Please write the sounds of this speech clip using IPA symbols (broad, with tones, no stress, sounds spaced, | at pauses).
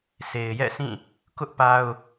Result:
sʰ e˨ ɪ̯ j ɛ̰˦˨ s ĩ˦˨ | k ʊ˦ ʔ p a˦ ʊ̯